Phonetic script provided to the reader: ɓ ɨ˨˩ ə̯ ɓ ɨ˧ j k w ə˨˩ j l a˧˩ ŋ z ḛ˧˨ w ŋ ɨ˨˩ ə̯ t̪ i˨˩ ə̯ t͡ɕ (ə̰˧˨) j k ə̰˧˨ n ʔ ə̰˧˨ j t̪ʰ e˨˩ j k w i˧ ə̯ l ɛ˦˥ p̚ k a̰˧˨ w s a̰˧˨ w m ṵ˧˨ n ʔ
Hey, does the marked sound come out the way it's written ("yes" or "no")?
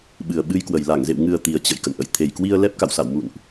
yes